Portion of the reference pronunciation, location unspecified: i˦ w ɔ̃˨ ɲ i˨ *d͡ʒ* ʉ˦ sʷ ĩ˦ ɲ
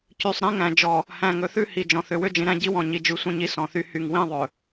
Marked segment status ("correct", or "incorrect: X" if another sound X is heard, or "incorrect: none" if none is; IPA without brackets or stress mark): correct